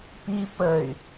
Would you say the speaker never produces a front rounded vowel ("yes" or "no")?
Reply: no